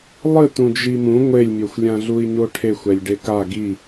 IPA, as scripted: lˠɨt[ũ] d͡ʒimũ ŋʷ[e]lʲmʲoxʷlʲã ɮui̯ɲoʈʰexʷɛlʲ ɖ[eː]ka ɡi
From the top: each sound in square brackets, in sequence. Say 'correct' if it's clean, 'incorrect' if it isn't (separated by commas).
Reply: correct, correct, incorrect